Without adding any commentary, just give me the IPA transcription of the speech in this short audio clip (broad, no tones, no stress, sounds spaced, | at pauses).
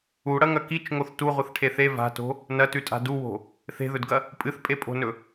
u ɽ ɐ ŋ ɐ k i t͡ʃ ŋ o θ t u ʁʷ ɨ θ ʈʰ e θ e v a̤ t o̤ | n ɐ t ʉ tʼ a̤ d u w o̤ | θ e̤ ð ɵ d ɡ ɐ | pʼ ɨ θ pʼ e pʼ o̤ n ɵ